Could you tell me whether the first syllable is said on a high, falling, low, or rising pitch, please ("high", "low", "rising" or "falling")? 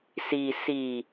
low